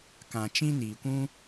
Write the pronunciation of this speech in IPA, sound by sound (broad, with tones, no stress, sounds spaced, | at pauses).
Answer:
k ã˨ t͡ʃ ĩ˦ n iː˨ kʷ ũ˦